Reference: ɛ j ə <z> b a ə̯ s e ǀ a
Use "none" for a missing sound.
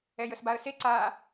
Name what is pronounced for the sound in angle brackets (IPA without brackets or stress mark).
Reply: s